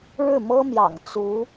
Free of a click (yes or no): yes